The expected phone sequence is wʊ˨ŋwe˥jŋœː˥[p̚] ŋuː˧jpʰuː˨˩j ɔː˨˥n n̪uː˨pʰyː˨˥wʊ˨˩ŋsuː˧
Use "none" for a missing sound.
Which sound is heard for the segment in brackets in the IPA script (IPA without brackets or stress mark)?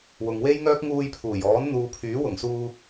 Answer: k̚